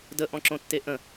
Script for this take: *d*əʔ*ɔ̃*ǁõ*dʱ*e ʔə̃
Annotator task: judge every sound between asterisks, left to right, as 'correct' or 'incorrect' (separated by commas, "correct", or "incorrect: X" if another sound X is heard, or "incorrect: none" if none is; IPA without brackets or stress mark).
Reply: correct, correct, incorrect: tː